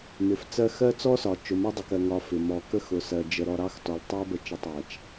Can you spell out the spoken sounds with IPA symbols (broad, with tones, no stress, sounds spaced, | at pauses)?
m ɪ˨ f t͡s ɜ˦ x ɜ˦ t͡s ɔ˦ s ɒ˨ t͡ʃ ʊ˨ m ɒ˦ dˤ ʊ˨ k ɜ˨ ŋ ɒ˨ f ɪ˨ m ɔ˨ k ə˦ x ʊ˨ s ɜ˨ d͡ʒ ə˨ ɾ ɔ˨ ɾ ɑ˦ x t ɔ˨ l tˤ æ˦ b ə˨ t͡ʃ ə˨ tˤ æ˨ t͡ʃ